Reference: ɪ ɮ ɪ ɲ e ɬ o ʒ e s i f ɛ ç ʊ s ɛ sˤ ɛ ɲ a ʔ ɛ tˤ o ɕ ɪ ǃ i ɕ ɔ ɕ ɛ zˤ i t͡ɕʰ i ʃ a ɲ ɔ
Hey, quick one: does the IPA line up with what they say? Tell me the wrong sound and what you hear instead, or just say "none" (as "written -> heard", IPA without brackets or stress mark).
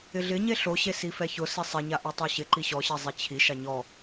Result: ʒ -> ɕ